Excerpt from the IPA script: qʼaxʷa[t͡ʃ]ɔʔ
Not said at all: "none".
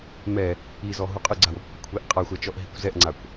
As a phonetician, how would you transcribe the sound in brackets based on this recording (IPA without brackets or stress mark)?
t͡ʃ